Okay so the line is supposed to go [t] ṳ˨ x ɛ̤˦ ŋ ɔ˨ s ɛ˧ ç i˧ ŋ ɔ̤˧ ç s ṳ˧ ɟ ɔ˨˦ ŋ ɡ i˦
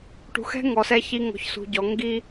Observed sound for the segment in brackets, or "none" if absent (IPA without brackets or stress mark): ʈ